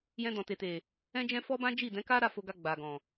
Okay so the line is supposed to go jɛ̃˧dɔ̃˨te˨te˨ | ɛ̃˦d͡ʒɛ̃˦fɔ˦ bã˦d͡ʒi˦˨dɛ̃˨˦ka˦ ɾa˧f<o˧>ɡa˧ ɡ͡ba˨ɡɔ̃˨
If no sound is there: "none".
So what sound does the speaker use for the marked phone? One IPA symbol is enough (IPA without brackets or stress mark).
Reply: o˧